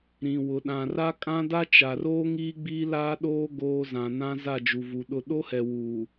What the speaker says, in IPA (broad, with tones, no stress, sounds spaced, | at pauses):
ɾ ĩ˨ w ʊ˨ ɗ ã˨ r a˦ kʼ ã˦ d a˦ t͡ʃ a˨ r oː˦ ŋ iː˦ ɡ͡b iː˦ l aː˦ ɗ oː˦ ɡ oː˦ z ã˨ n ã˦ z a˦˨ d͡ʒ u˨ v u˨ ɗ ʊ˦˨ ɗ o˦ h ɛ˨ w uː˨